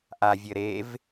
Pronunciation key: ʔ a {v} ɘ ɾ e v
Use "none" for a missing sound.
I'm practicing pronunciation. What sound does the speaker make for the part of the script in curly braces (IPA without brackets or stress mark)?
vʲ